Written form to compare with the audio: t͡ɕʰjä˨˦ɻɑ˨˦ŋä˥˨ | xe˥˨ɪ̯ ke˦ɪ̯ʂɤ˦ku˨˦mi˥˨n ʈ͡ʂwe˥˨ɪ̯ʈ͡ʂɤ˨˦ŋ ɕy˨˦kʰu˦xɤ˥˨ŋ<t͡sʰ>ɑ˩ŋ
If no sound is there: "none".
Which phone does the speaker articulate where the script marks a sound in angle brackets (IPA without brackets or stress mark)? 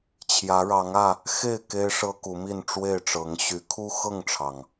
ʈ͡ʂʰ